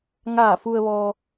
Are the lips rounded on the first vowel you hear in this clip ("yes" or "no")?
no